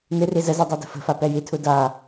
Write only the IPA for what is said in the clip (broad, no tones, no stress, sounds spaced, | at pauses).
n ɨ r i z ə z i dˤ a d ə̤ f ə̤ f a p ɛ j i tʰ u d a